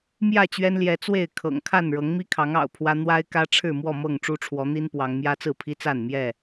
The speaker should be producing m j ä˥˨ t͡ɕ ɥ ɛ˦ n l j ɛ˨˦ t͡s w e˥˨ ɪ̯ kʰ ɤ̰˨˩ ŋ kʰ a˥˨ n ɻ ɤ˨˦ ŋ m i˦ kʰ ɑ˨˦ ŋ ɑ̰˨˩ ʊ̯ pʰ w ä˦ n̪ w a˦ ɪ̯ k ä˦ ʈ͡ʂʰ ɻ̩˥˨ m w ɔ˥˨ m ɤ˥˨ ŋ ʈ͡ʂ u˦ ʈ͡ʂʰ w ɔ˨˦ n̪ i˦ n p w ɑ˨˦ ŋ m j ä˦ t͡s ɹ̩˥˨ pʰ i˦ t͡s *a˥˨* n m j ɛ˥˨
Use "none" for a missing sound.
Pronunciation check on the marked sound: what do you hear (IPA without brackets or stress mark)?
a˥˨